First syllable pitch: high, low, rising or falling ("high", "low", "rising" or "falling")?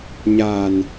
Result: low